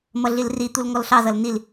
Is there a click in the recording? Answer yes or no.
no